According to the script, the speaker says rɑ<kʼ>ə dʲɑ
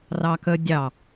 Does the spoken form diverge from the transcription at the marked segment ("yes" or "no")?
yes